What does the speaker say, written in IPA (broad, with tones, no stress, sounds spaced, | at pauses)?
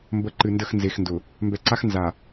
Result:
m b ə˨˦ ǃ ɨ˨ n d ə˦˨ x n z e˨ x n d ʊ˨ | m b ɛ˨ ǀ a˦ x n z a˨